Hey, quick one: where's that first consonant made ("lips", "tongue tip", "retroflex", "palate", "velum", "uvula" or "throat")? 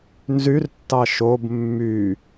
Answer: tongue tip